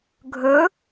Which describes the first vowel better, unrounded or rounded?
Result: rounded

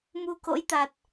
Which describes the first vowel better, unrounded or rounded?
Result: rounded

